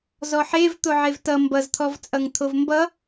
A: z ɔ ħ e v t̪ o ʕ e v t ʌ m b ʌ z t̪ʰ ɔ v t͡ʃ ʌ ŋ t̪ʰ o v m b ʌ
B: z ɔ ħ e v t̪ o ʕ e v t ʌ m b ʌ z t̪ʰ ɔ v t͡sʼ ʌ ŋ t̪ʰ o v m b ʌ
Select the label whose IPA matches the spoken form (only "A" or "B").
B